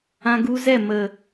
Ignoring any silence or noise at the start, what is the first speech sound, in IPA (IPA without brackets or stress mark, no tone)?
ã